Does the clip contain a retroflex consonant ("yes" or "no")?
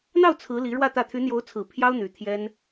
yes